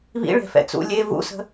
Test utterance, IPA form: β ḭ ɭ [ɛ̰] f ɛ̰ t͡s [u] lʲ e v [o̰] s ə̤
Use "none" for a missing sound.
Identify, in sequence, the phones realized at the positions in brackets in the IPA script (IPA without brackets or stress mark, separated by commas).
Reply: ɛ̤, ṵ, ṵ